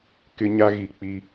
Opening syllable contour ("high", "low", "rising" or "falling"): high